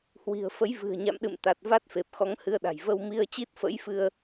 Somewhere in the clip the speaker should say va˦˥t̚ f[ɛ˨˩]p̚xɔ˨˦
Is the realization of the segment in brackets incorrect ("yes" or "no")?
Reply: yes